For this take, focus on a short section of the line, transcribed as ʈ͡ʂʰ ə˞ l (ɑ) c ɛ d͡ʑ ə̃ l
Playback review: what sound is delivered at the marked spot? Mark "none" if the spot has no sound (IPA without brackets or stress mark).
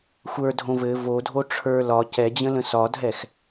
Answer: ɒ